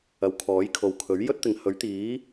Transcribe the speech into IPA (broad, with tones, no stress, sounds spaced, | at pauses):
ɐ˨ w kʰ ɔː˨˥ j kʰ o˨ w kʰ ɵ˨˥ ɥ j ɵ˥ t̚ t̪ ɪ˨ ŋ h ɵ˨˥ ɥ t̪ iː˨˥